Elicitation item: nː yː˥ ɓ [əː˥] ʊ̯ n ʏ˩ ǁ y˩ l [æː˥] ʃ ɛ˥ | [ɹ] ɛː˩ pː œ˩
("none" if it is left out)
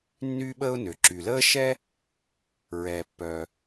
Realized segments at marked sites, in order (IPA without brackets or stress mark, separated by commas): əː˥, əː˥, ɹ